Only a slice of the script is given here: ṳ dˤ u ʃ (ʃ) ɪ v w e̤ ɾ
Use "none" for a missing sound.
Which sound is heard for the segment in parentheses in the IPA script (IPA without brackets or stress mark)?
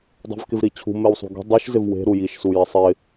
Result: z